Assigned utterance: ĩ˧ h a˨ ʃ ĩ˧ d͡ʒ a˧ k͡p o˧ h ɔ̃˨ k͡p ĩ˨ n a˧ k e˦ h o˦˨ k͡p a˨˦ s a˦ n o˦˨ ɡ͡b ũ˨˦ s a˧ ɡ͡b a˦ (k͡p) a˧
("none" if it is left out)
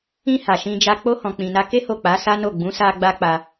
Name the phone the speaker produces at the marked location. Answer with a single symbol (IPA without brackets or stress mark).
k͡p